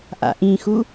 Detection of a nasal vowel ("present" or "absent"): present